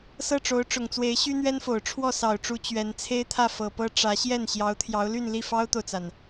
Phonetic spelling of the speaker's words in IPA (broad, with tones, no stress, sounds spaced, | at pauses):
s ɤ˥˩ ʈ͡ʂ o˧˥ ʊ̯ ʈ͡ʂ ʊ˨˩ ŋ t͡s w e˧˥ ɪ̯ ɕ y˥ n̪ ɥ ɛ˥ n f o˨˩ ʊ̯ ʈ͡ʂʰ w ɔ˥˩ s ɑ˨˩ ʊ̯ ʈ͡ʂ u˧˥ t͡ɕ ɥ ɛ˧˥ n t͡sʰ e˥ ɪ̯ t̪ʰ ä˥˩ f ɤ˨˩ p ɤ˥ ʈ͡ʂ ä˧˥ ɕ j ɛ˥˩ n ɕ j ɑ˧˥ ʊ̯ t̪ʰ j ɑ˧˥ ʊ̯ l y˥˧ n l i˥˩ f ɑ˥ ʊ̯ t̪ o˨ ʊ̯ t͡s a˩ n